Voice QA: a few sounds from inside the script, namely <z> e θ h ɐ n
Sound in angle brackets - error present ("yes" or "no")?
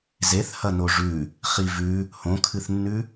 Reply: no